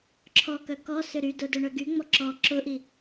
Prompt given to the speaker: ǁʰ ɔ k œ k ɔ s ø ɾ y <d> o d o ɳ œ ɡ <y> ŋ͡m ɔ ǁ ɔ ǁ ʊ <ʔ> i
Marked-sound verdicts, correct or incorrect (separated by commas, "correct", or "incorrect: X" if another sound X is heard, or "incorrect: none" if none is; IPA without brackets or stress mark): correct, correct, correct